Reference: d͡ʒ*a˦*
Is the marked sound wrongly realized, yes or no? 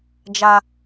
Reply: no